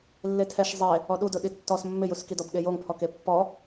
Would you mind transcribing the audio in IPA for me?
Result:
lːetʰɛʃ zˤe | ɔɗudʊ ɗitːɔs mːɪjuskidɔb ɠejoŋpʰɔk epːɔ

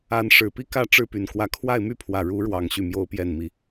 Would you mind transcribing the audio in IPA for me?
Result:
a˧˥nʂɻ̩˨˩pi˥ kä˥˧ ʈ͡ʂɻ̩˥˩ py˨˩nkwä˧˥ kʰwa˥˧ɪ̯my˥˩pʰwä˨˩ ɻu˧˥ɻwɑ˨˩ŋ ɕy˥˩ mjo˥ʊ̯pjɛ˥˩nmi˧˥

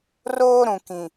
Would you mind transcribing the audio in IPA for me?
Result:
roː˦ ɾũ˨kĩ˨

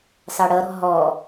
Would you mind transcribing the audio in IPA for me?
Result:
sɑɽʌɾɔ̤ ɦɔ

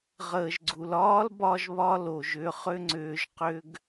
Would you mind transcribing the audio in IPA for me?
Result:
ʁəː˩ʒɡ͡ǀu˩l ɒː˥lbɒ˧ʒβɒ˧ lo˩ʒʏ˩˥ χʏ˥ŋ͡ǀʏː˧ʒqʏ˥ɡ

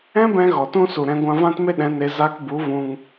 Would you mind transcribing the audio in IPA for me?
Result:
ɛ̃˦bɛ̃˧ ɣɔ˨tũ˦su˨ɾɛ̃˧ ɡʷã˧vã˦tme˦ɗɛ̃˨˦ ne˧zaː˦k bu˨˦vũ˧ŋ

